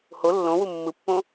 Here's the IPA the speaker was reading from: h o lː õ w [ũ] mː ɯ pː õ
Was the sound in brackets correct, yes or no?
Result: no